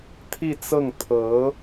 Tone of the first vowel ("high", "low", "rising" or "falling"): falling